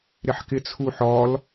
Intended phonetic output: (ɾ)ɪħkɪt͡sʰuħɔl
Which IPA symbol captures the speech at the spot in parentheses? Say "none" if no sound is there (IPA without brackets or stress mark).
ɾ